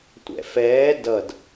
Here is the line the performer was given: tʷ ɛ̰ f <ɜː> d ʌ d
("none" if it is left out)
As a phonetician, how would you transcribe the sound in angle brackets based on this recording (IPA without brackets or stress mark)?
ɛː